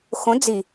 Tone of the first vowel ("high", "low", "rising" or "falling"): rising